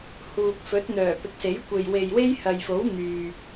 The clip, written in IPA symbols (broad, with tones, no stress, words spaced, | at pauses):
huː˨k̚fɵ˨˥t̚n̪œː˨˩ pɪ˨˥k̚se˨˥jkʷe˨j we˨jwe˥jhɐ˨jfo˨˥w n̪yː˨